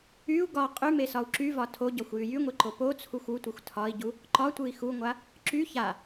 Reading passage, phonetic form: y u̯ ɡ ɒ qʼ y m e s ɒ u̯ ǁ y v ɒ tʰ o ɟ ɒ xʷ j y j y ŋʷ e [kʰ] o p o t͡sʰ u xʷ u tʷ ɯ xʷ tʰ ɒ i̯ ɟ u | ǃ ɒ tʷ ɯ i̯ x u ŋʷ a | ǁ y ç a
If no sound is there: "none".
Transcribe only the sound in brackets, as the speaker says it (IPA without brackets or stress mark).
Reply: ǃ